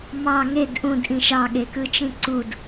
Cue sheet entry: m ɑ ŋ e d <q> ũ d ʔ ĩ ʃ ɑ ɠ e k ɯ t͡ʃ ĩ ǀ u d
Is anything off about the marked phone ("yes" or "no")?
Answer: yes